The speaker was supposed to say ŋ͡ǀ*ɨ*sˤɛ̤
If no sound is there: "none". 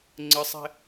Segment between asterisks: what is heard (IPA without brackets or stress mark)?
ɨ